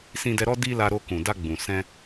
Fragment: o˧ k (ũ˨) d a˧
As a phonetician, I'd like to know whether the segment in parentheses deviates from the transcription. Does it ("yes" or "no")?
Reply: no